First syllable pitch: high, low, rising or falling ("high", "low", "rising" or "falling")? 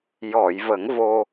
low